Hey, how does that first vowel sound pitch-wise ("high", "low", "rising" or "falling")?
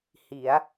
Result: rising